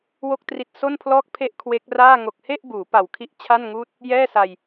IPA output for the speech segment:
w o˥˩ k̚ t r i˦˥ t̚ s o˥˩ n pʰ l ɔː˥˩ k̚ pʰ e˥˩ ʔ kʰ w e˦˥ k̚ r aː˥˩ ŋ o˨˩ k̚ h e˥˩ ʔ b uː˩˦ p a˨˩ w kʰ i˦˥ ʔ t͡ɕʰ a˥˩ n ŋ uː˥˩ t̚ | j ɛː˥˩ s a˧ j

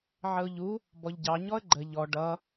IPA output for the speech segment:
ʕ ə ʊ̯ ʎ u | b ɔ ʎ ɟ ɑ ɲ ɔ ə̯ ɡ͡ǃ ə ʎ ɔ ɖ ʌ

